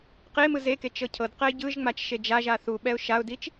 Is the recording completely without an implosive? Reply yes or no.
no